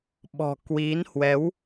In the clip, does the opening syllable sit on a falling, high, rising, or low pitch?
low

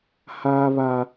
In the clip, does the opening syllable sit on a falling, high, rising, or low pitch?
high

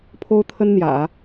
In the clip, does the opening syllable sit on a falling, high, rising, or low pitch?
high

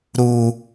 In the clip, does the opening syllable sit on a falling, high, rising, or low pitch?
high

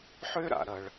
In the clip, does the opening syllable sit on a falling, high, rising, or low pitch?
high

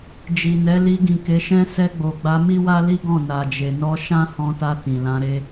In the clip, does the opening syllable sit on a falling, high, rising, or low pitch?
low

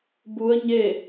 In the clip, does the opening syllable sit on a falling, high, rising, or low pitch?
rising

